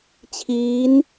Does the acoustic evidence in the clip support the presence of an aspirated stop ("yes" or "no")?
yes